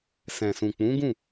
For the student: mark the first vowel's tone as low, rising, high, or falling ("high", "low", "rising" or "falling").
low